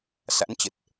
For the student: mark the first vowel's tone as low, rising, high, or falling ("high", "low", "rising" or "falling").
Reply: rising